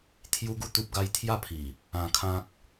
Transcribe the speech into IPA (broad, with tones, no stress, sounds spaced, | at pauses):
t̪ʰ j u˦ ɡ u˥˧ t̪ u˦ p̚ ɡ a˦ j t̪ʰ j a˥˧ pʰ i˨˩ | ã˧ kʰ ã˦ k̚